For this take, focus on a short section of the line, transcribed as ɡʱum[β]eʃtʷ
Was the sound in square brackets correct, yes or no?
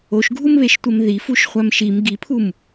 yes